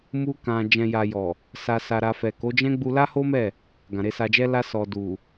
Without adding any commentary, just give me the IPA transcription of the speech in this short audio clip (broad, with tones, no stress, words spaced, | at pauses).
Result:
mu˧kã˨ d͡ʒɛ̃˨ja˨jɔ˨ | sa˨sa˨ɾa˨ fɛ˨ko˨˦d͡ʒɛ̃˦ ɡ͡bu˧la˦ho˦mɛ˦˨ | ɡã˨ɾe˧sa˧d͡ʒɛ˦ la˧sɔ˨ du˨